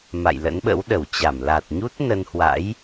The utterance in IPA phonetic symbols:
m a̰˧˨ j l ə̰˧˥ n ɓ ə̰˧˥ w ɗ ə˧˩ w t͡ɕ a˧˩ m l a˨˩ t̚ ɲ u˦˥ t̚ n ə˧ n h w a̰˧˥ j

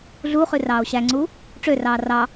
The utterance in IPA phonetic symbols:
ɮ u χ ʉ r ɑː o̯ ɕ æ ŋ͡ǀ u | ʈ͡ʂ ø r ɑː r ɑ

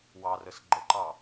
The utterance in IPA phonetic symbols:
w ɑ r ə s ɡ͡ǃ ə ǃ ɑ

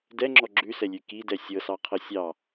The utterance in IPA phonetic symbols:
d ɛ ŋ͡ǁ ɔ ɡ͡ǁ ʉ s ɛ lʲ ʉ k i d ɛ sʲ ɤ s ɑ qʰ ɤ sʲ ɑ

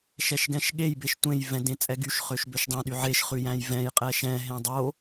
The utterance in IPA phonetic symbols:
ʃ ɛ ʃ ɡ ɛ̃ ʃ ɠ e j b e ʃ tʷ ẽ j v ɛ̃ d ẽ t͡sʼ ɛ ɡ y ʃ χ ø ʃ b ø ʃ dˤ ɛ̃ ɗ y ʕ e ʃ χ ʉ j æ̃ j v ɛ̃ j qʼ ɛ ʃ ɛ̃ ɦ ẽ dˤ o

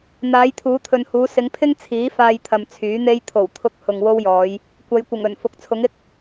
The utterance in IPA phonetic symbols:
n̪ aː˨˧ j t̪ʰ uː˨˧ t̪ʰ ɵ˨ n h uː˨˧ s ɪ˨˧ ŋ pʰ ɪ˥ ŋ t͡sʰ iː˨˥ f aː˧ j t̪ʰ ɐ˨ m t͡sʰ yː˨˥ n̪ e˥ j t̪ʰ o˨˩ w t̪ʰ ʊ˧ k̚ h ʊ˧ ŋ w o˥ w j ɔː˨˧ j | kʷ ɐ˨˧ j kʷ ɪ˨˩ ŋ ɵ˨˩ n f ʊ˨ k̚ t͡sʰ ʊ˨˥ ŋ ɪ˥ k̚

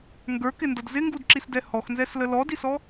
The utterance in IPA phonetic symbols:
ŋ ɡ ə˞ k ɪ n d ʌ d z ɪ ŋ ɡ u d ǁ i s d ɛ h ɔ x n z ɛ s l ə l ɔ d i s ɔ

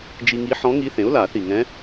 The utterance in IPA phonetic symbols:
d͡ʒ i˧ ŋ i˧˥ ħ ɔ̃˧˥ ŋ i˧˥ θ ẽ˩˥ ʊ̯ l a˨˩˦ θ i˨˩ ŋ ɛ̃˧˥

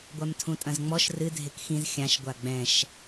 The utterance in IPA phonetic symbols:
ɡʷ a m tʰ ũ tʼ ɐ̃ z ŋ͡m ɔ ʃ r ɨ dʱ e k x ĩ z xʲ ã ʃ ɡʷ a ɡ͡b ɛ̃ ʃ

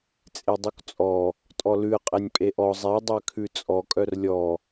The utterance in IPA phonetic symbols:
t͡sʼ e dˤ u k t͡sʼ ɔ | tʼ ɔ l ʉ ə̯ qʼ ɛ nʲ pʼ e ʔ ɔ zˤ e dˤ ø kʰ ʉ t͡sʼ ɔ kʼ œ r lʲ ɔ

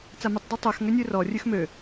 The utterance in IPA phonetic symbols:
t͡s a m ʉ tˤ d ɯ tˤ ø x ŋ ø nʲ ʉ r ɔ rʲ ʉ x m ø

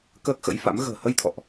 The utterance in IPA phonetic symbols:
k əː˦˥ k̚ x ə̰˧˥ j f a̰˧˥ m ɣ ə̤ː˨˩ h ə˧ j t̪ʰ ɔ̰˧˨ ʔ

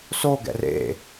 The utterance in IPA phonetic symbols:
s o ɡ ɛ̰ r ḛ

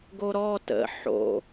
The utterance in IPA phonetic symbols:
ɡ o ɾ ɔ t ə̰ ħ o̰

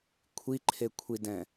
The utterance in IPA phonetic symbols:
kʷʰ i ǃʰ e kʷʰ i d ɛ̃

